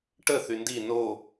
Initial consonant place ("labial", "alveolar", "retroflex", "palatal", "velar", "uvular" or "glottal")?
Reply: retroflex